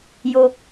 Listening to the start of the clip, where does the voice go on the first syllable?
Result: low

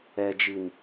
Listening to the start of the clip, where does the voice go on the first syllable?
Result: low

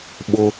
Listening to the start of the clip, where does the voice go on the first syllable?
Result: high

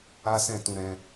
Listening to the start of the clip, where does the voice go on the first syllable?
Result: high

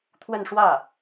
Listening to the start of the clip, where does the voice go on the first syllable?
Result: falling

